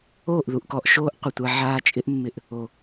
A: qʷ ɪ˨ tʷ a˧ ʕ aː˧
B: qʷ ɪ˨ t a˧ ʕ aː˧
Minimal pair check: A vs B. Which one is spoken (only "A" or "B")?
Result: A